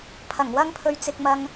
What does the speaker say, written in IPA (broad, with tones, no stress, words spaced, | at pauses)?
pʰɐ˨˩ŋwɐ˥ŋpʰɵ˧ɥt͡sɪ˧k̚ mɐ˧ŋ